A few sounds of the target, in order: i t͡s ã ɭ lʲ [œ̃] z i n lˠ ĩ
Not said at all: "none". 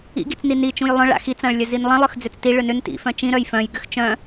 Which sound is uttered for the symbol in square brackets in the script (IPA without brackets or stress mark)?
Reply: œ